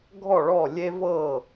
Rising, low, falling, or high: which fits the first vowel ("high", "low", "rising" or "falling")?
falling